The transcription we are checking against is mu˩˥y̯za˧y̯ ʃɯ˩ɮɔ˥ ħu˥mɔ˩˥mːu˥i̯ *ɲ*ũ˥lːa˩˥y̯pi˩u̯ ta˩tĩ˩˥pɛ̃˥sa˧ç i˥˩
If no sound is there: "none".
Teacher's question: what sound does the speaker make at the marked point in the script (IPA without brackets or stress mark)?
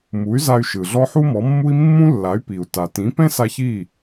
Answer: mː